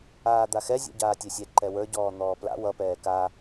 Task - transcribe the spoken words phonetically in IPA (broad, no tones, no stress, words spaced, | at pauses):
aːd̪axɛ zʲɛ̰ɟaːtʲɛsʲɛ ǃɛwə˞ ɟɔːn̪ɔːpla̰ wʌ pɛːka